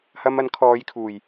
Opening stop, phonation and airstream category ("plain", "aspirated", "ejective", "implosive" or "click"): aspirated